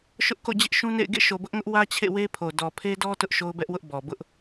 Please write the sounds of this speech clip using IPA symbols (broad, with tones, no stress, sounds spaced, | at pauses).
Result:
ʃ ʊ˦ ʔ k o̰˦˨ d͡ʑ ɪ˦ ʔ ʃ ũ˦ n ḛ˦˨ ɪ̯ ɡ ḛ˦˨ ʃ o˨ b ʊ˦ ʔ ŋ ʊ˦ ʔ w ä˦ t͡ɕʰ ḛ˦˨ w e˦ pʰ o˨ d ɔ˨ pʰ e˦ d ɔ˦ t ʊ˦ ʔ ʃ o˦ ʊ̯ b ɛ˦ ʔ w ʊ˦ ʔ b ɔ˨ b ʊ˦ ʔ